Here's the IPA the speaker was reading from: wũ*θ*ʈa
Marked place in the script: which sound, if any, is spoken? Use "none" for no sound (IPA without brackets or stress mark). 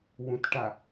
t